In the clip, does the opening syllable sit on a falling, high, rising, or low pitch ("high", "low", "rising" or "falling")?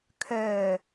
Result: low